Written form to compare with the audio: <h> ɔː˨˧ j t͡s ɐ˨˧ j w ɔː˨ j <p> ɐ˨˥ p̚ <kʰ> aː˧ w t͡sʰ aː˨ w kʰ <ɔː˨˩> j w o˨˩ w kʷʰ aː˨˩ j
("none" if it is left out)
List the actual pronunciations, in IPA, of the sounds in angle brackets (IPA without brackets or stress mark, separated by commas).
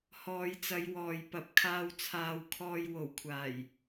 h, p, kʰ, ɔː˨